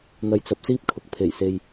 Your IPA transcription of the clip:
n̪ ɐ˧ j t͡s ɐ˧ p̚ s iː˥ p̚ kʰ ʊ˨ k̚ pʰ e˨˩ j s e˧ j

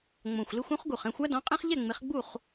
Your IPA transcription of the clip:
ŋ͡m õ˨˩ xʷ l ɪ˦ xʷ õ˦ χ ɡ u˨˩ χ ɛ̃˥˨ xʷ a˦ d ɔ̃˨˦ qʼ ẽ˦ χ ʎ ɛ˥˨ ŋ͡m ɪ˨˦ χ ɡ͡b u˥˨ χ

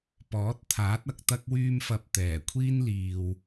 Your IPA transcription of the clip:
p ɔː˨˥ t̚ t̪ʰ aː˨˥ t̚ ɐ˧ k̚ t̪ ɐ˥ k̚ w yː˥ m f ɐ˧ p̚ t̪ ɛː˨˩ kʷʰ iː˥ n l iː˨ w

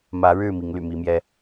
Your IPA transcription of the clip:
m ä˨˦ ɻ ɻ̩˥˨ m i˨˦ ŋ l y̰˨˩ m i˨˦ m j ɛ˦

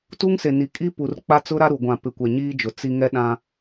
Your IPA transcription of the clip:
t u˦ ŋ s e˨ n i˨ kʼ i˦ p u˨ r k͡p a˦ t͡s ʊ˦ ɾ a˦ ɾ u˨ ɡʷ ã˨ p ɪ˨ kʷ ɛ˨ ɲ iː˦ d͡ʒ ʊ˨ t͡s i˦ ŋ ɛ˦ ɗ ã˦

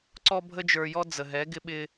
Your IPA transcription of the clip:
ǀ ɔ˦ bʱ ə˦ d͡ʒ ə˞˧ j ɔ˦ d͡z ə˨ ɦ ɛ˨˦ ɡ ɪ˦ ɓ ɪ˦

